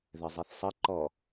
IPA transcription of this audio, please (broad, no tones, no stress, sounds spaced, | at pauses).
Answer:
ð ɘ zˤ i θ sˤ ɘ ǃ ɔ